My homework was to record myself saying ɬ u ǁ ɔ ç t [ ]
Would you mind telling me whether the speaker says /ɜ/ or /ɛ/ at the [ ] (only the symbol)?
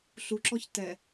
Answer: ɛ